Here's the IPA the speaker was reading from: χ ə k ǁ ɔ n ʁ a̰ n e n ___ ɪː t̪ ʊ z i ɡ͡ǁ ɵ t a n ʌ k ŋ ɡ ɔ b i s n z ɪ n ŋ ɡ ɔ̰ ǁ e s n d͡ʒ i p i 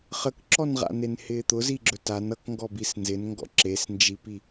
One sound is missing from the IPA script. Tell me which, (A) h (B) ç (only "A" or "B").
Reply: A